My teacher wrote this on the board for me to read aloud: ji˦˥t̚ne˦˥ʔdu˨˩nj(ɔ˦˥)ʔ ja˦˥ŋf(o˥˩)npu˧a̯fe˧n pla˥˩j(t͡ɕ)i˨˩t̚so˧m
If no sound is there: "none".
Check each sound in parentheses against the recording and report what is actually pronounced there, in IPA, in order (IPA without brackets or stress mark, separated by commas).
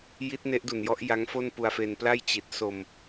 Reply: ɔ˦˥, o˥˩, t͡ɕ